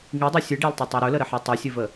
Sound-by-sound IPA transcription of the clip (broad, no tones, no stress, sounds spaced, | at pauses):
ŋ i dˤ ɵ sʲ ɨ ɖ e lˠ tˤ a tˤ a ɾ ɵ l ə ɾ ə ħ a tˤ i sʲ ɨ v ə